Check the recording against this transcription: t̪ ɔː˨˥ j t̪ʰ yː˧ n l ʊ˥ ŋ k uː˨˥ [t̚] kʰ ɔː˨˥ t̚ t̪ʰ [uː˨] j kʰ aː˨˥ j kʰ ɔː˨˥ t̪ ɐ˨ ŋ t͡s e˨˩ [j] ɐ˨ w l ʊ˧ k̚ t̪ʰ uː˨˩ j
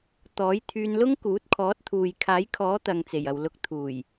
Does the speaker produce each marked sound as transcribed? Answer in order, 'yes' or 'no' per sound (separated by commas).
yes, yes, yes